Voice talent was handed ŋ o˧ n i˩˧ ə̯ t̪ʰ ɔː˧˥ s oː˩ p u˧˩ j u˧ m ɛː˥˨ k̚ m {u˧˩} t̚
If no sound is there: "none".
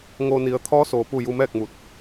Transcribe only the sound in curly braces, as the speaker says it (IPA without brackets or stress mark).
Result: u˧˩